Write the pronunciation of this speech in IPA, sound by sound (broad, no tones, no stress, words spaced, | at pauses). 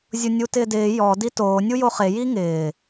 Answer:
zʲʊnʲutɪːdɪː jɔ ditoː nʲujoχe jiŋɪː